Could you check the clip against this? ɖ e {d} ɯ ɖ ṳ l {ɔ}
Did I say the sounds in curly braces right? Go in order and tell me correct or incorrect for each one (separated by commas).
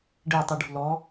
incorrect, correct